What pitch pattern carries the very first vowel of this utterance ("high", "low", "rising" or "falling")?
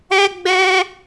high